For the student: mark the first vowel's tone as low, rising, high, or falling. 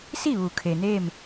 falling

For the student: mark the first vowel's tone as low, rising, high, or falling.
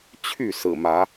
falling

